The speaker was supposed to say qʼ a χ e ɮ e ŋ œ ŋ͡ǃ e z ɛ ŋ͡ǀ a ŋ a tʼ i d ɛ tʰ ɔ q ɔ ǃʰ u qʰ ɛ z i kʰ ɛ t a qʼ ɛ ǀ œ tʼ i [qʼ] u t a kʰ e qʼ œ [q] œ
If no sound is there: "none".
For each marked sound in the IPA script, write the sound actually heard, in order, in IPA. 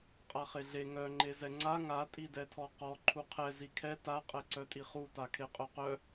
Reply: χ, q

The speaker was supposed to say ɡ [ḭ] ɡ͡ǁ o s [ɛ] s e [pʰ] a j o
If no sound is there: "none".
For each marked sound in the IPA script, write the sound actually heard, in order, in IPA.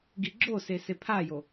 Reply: i, e, pʰ

